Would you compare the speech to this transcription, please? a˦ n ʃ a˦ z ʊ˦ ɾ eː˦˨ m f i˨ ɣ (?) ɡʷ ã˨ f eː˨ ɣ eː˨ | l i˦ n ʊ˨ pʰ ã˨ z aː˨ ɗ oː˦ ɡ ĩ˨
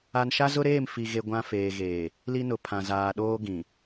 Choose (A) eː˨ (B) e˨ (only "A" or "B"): B